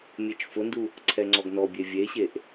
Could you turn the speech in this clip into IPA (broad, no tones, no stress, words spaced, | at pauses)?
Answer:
mʲet͡ʃfʊndu | ǀʰɛŋ͡ǀɔɡnɔbʲe vʲeɕeʔ